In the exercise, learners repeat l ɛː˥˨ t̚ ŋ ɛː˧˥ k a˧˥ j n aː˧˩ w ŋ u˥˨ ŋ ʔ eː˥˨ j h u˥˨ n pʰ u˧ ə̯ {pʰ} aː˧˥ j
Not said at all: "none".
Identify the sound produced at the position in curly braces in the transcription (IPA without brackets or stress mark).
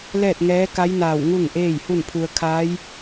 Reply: kʰ